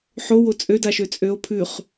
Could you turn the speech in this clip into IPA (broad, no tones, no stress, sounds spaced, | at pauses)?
ħ o w o t͡sʼ ø d a ʃ ø t͡sʼ ø o̯ pʰ ʉ χ